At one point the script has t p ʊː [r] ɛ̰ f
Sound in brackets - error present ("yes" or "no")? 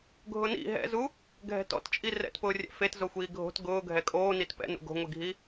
yes